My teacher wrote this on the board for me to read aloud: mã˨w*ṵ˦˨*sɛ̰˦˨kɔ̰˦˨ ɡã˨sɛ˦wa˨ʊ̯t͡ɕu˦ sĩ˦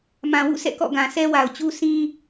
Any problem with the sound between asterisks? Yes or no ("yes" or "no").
no